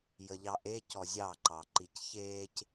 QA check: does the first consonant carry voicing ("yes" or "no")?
yes